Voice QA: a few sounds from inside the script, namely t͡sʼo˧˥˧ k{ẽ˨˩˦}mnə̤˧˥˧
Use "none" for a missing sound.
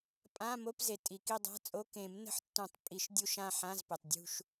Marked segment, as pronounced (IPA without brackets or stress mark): ẽ˨˩˦